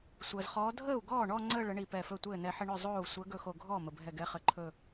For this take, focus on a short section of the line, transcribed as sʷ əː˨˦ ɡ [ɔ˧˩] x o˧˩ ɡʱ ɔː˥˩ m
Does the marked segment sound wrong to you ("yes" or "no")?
yes